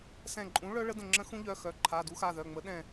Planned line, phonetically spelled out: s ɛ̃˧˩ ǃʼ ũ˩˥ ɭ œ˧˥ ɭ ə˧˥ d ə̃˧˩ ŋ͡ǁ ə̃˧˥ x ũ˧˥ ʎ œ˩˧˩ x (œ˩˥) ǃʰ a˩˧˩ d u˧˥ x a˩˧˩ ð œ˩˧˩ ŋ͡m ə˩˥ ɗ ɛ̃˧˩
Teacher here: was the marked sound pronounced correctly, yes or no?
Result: yes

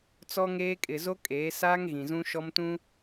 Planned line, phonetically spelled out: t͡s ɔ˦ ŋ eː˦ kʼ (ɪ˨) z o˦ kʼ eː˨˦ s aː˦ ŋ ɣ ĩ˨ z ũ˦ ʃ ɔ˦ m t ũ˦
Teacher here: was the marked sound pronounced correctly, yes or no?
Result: yes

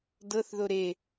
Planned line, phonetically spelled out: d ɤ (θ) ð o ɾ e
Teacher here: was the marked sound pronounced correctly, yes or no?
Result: yes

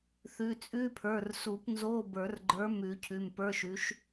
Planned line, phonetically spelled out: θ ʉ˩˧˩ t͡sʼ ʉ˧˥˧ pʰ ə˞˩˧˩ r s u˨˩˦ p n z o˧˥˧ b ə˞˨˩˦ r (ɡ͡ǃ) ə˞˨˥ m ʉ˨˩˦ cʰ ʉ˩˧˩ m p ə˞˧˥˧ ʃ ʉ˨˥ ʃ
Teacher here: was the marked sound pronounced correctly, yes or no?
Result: yes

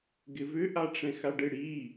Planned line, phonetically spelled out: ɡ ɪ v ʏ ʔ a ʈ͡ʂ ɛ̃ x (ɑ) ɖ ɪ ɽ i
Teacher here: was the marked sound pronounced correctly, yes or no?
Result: no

